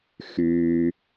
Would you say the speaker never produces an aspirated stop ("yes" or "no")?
yes